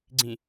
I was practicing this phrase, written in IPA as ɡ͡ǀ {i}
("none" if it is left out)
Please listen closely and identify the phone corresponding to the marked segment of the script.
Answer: ĩ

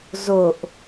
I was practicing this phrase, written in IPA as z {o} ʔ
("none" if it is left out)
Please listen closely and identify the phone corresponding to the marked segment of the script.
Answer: o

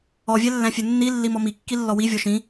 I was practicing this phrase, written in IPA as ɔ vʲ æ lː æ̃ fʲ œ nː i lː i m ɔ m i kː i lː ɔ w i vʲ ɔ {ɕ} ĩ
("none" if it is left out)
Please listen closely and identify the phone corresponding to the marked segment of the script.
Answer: ʃ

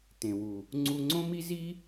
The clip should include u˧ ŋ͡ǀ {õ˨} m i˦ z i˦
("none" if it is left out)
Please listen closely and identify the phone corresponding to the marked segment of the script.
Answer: õ˦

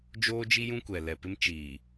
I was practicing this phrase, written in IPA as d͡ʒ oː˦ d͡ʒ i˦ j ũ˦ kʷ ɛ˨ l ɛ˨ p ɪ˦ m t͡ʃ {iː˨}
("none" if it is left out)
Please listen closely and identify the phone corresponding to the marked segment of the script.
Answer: iː˨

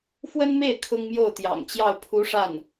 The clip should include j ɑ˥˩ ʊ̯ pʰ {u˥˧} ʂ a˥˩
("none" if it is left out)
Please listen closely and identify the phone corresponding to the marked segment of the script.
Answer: u˧˥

